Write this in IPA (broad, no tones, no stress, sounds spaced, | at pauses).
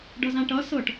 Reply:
ɖ ʌ z ã ʈ ʌ s ɤ ʈ